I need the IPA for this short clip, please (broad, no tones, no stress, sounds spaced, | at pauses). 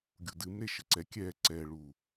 ɡʲ u d ɨ m ɾ e ʃ ɘ ǀ ɛ kʲ ɛ ǀ ɛ ɭ u